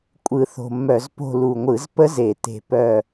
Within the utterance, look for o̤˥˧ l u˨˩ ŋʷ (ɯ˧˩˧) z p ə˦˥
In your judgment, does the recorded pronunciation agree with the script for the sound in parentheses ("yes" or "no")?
yes